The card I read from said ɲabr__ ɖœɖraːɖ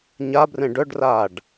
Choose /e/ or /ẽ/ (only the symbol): ẽ